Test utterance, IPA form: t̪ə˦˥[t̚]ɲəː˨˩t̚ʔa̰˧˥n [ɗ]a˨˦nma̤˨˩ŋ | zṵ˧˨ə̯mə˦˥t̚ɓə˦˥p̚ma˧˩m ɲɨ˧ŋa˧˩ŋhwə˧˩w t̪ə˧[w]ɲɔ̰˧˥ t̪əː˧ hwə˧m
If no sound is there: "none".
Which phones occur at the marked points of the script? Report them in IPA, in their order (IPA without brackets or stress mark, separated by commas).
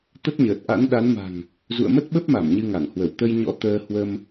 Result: t̚, ɗ, j